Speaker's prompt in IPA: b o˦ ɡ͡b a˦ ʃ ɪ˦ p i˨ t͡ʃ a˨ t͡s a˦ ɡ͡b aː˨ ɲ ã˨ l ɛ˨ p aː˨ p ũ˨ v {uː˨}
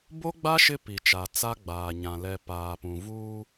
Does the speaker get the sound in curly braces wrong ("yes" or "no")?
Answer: yes